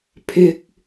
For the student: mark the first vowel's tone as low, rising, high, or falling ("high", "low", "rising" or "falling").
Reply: high